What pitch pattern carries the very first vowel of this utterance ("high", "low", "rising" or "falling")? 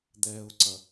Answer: low